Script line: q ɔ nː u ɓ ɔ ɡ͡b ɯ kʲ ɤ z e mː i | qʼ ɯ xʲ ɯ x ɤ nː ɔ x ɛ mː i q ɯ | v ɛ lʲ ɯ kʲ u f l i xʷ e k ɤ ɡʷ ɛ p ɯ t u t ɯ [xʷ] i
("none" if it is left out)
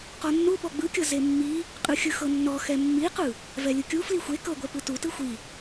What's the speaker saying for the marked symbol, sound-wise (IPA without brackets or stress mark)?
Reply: xʷ